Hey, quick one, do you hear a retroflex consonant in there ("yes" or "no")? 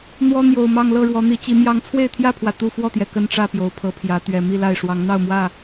yes